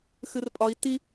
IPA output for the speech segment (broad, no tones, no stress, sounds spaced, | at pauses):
x ɨ r pʼ ɒ i̯ t i